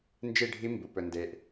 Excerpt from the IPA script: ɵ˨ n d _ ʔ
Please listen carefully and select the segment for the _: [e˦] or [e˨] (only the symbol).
e˨